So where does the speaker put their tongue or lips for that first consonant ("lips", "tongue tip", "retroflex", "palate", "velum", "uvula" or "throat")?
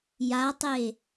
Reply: palate